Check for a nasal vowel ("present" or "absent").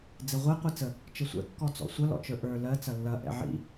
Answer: absent